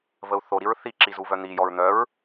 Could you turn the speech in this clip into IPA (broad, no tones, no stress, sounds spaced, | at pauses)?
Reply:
v ə u̯ θ o ɾ i ɹ θ i ǁ i z u v œ n̪ i j ɔ ɹ n̪ œ ɹ